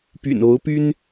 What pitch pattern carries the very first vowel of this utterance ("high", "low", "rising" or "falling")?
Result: low